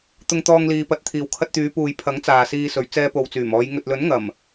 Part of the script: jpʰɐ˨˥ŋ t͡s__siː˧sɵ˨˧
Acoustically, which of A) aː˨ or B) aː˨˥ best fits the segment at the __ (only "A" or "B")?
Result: A